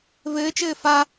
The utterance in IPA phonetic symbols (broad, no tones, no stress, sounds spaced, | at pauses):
v ɘː t͡ʃ ɘː f a